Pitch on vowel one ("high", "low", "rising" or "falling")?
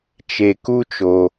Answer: low